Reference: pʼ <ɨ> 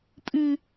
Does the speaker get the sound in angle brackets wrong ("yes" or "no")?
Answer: no